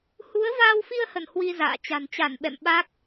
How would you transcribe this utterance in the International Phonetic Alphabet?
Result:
h u˨˦ ə̯ v aː˧ w f i˧ ə̯ h ə˧˩ n h w i˧ z a̰ː˧˨ t͡ɕ a̤˨˩ n t͡ɕ a˧˩ n ɓ ɛ̰˧˨ m ɓ a˦˥ k̚

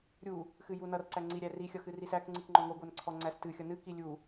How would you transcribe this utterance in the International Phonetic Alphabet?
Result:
ɾʲ u | x ɨ j u n ʌ r ǀ æ ŋ͡ǀ i ɾʲ æ r i xʲ ʌ x ɨ r i s æ k ŋ͡ǀ ɨ k ŋ͡ǃ ɔ ŋʷ ɨ ɡʷ æ n ǀʰ ɔ ŋ͡ǀ æ s t ɨ xʲ ʌ n ɨ k i lʲ u

